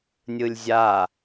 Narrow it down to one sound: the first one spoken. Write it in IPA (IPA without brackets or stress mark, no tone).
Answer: nʲ